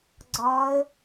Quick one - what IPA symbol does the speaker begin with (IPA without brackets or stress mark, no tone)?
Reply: ɡ͡ǀ